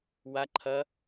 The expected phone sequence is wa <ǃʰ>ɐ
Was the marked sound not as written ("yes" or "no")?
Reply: no